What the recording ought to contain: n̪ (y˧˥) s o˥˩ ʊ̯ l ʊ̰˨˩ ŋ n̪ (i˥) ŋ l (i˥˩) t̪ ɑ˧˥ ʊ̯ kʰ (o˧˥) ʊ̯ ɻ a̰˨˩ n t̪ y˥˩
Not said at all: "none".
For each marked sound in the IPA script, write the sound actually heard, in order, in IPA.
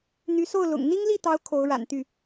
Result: y˧˥, i˥, i˥˩, o˧˥

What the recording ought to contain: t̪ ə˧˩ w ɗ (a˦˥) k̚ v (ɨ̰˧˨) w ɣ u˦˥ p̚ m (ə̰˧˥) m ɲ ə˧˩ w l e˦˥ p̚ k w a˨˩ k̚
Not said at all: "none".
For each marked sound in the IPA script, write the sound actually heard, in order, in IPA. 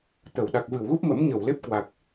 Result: a˨˩, ɨ˧˩, ə̰˧˥

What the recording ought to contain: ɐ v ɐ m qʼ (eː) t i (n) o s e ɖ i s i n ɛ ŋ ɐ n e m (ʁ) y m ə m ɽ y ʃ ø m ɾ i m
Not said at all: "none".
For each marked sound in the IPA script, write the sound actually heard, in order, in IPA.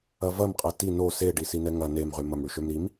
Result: e, n, ʁ

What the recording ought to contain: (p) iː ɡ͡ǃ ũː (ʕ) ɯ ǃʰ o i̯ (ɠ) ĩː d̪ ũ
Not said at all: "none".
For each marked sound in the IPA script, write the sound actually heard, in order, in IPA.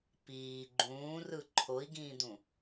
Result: p, r, ɡ

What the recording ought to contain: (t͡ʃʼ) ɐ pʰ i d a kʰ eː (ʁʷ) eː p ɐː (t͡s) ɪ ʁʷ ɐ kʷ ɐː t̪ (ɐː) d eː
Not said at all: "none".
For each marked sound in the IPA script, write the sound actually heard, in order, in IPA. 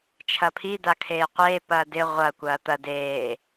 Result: t͡ʃʰ, qʷ, d, ɐ

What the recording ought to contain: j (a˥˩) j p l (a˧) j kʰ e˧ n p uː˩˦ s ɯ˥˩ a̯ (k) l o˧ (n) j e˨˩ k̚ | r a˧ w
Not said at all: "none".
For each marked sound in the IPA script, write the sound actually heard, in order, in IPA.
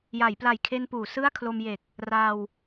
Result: a˩˦, a˨˩, kʰ, m

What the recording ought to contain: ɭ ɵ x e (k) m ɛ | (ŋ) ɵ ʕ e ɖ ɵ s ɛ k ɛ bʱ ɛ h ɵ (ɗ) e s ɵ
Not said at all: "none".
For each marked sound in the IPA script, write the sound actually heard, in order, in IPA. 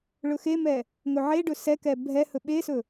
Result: none, ŋ, ɓ

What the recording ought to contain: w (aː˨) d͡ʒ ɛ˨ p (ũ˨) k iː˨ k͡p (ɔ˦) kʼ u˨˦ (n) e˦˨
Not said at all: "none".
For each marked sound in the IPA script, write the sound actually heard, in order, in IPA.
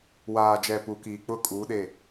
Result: aː˨, u˨, ʊ˦, ɗ

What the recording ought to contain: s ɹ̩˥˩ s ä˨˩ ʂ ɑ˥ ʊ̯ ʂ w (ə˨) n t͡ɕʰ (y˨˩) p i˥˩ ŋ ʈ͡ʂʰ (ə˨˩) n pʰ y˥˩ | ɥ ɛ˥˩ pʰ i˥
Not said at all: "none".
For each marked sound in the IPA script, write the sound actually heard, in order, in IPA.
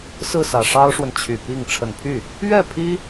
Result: ə˨, y˨˩, ə˨˩

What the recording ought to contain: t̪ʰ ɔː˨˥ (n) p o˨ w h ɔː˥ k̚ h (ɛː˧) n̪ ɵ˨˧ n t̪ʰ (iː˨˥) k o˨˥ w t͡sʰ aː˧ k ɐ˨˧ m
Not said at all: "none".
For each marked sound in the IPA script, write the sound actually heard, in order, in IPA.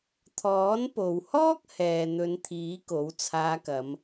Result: n, ɛː˨, iː˨˥

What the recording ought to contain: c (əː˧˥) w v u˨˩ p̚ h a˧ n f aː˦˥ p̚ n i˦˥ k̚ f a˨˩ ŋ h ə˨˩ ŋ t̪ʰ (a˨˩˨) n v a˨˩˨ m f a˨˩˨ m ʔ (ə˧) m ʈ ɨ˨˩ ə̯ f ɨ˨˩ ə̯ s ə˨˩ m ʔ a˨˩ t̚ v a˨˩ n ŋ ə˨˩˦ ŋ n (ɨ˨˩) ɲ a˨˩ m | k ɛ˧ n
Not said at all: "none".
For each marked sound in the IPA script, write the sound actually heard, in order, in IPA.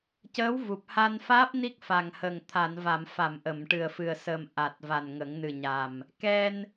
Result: əː˧˥, a˨˩˨, ə˨˩˨, ɨ˨˩

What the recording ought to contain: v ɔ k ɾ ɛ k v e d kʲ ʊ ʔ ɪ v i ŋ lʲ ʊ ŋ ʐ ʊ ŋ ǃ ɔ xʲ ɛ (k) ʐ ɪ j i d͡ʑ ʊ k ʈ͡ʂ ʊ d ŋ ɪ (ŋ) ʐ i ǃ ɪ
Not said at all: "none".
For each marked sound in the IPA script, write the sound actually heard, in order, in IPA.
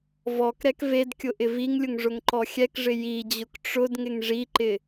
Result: k, ŋ

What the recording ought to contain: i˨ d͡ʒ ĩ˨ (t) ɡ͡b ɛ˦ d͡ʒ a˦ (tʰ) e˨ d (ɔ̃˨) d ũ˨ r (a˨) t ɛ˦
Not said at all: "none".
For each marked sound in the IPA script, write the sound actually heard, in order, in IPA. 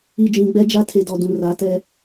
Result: none, tʰ, ɔ˨, a˨˦

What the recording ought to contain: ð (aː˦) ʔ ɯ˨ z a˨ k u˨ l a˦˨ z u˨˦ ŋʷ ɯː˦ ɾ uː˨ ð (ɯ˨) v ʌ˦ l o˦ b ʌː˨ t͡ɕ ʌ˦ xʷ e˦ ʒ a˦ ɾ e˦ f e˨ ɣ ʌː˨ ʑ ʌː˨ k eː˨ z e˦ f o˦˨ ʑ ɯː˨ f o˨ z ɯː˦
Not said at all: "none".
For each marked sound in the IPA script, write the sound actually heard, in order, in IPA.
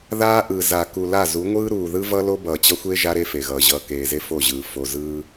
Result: aː˦, ɯ˦

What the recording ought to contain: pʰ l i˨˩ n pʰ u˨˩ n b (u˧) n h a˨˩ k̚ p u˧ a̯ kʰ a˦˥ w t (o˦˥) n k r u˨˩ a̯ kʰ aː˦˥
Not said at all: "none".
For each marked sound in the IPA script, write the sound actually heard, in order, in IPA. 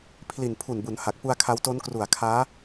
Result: u˩˦, o˦˥

